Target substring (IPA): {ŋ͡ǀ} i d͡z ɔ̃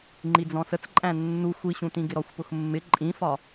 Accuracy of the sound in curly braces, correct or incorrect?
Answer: incorrect: ŋ͡ǃ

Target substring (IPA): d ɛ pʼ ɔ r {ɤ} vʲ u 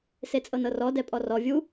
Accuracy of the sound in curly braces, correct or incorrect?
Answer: incorrect: ɔ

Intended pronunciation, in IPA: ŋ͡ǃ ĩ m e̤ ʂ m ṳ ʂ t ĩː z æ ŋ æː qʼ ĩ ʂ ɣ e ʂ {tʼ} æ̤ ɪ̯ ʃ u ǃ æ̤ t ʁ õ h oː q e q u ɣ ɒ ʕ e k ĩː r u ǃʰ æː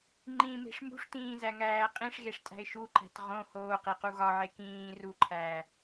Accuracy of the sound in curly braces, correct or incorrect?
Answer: correct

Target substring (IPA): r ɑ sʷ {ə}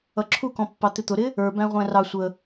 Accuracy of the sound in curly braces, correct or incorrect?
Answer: correct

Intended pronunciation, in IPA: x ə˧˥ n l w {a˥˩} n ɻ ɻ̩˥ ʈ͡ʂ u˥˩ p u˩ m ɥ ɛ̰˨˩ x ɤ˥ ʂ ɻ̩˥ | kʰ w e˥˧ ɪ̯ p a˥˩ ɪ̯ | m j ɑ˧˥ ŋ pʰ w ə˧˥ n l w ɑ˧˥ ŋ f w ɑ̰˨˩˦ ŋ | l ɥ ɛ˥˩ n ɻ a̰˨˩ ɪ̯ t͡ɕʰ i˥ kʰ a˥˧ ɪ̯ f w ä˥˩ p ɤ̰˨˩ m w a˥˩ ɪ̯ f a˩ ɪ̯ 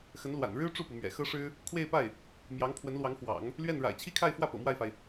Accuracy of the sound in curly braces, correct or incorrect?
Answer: incorrect: a̰˨˩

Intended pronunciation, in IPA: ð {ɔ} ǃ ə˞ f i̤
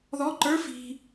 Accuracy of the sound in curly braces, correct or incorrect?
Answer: correct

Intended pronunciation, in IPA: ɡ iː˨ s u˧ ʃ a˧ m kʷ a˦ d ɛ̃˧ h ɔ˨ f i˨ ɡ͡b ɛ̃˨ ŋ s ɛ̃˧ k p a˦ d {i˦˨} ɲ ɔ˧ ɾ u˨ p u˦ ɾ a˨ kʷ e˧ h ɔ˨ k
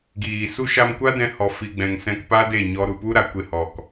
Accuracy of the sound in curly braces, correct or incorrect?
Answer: incorrect: e˦˨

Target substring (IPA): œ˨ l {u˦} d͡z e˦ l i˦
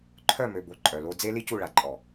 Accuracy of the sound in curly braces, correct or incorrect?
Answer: incorrect: o˦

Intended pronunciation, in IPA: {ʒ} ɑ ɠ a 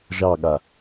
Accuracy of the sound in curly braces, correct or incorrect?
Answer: correct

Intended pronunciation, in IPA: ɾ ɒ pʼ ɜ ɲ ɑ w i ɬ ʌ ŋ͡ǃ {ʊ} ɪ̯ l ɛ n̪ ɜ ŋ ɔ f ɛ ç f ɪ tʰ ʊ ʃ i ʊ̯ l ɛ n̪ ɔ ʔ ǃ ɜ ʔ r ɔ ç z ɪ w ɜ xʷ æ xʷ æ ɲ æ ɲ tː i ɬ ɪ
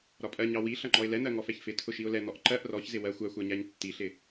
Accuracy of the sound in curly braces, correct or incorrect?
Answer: incorrect: ɔ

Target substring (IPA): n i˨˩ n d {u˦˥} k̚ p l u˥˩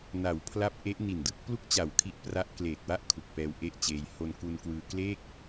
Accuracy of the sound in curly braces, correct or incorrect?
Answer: incorrect: ɯ˦˥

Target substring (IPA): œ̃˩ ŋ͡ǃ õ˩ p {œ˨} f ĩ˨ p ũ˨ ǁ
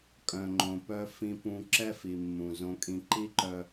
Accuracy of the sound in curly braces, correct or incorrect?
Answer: correct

